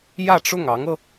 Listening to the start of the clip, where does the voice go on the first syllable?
falling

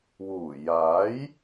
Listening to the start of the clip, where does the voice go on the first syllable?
low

